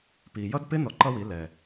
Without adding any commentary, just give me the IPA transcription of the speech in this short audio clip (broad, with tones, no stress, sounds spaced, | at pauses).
p i˨ j ʌ˦ d p ɪ˦ n ɔ˧ ǃ ʌ˦ w i˨˦ l ɛ˨